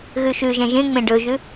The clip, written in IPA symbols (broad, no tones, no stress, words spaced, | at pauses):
ɣʉʃʉʒɛ̃ ʒẽŋ͡mẽ ɖɵʒʉ